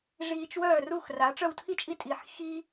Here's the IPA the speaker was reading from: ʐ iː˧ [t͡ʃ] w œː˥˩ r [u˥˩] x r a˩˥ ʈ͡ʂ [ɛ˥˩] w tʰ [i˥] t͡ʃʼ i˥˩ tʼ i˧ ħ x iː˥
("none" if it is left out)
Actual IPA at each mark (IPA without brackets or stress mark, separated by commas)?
t͡ʃ, u˥˩, œ˥˩, i˥